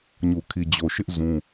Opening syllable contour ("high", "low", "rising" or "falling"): low